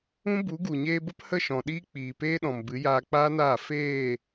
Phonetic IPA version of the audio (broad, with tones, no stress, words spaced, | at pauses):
ũ˦bu˨˦ ɡu˨ɲeː˧bə˦p hə˦˨ ʃɔ̃˨ɗiː˦ k͡piː˨peː˦ɗɔ̃˨m bɨ˨˦jaː˧k͡paː˦naː˦˨ feː˦˨